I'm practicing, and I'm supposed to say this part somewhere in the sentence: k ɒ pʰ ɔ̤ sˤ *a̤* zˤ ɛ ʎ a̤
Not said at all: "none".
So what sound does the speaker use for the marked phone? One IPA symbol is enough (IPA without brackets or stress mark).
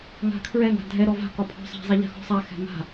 a̤